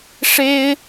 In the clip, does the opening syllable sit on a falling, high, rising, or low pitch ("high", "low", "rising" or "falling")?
high